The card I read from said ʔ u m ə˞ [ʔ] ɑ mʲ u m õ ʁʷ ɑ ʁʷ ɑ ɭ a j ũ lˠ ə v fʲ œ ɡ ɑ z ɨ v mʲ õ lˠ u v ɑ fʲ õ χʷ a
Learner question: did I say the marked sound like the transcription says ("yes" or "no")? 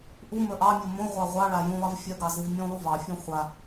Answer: yes